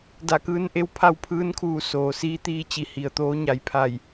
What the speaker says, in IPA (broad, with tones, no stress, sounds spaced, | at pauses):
d a˧˩ k ɯː˧ n ʔ e˧˥ w pʰ a˥˨ w pʰ ɯː˧˥ n kʰ uː˧˩ s oː˩ s iː˧˥ t̪ iː˧ t͡ɕ i˧˩ h i˩ ə̯ t̪ oː˧˥ ɲ a˩˧ j pʰ a˧˩ j